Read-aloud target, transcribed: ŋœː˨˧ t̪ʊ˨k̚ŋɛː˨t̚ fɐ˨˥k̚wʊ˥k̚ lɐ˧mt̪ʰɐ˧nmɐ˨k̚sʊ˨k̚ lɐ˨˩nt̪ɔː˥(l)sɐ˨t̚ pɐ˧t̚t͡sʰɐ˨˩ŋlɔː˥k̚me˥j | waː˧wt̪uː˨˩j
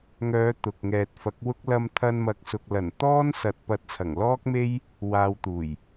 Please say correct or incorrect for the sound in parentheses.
incorrect